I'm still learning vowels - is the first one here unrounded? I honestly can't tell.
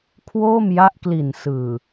no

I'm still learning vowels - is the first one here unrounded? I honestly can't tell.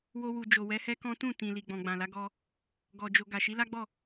no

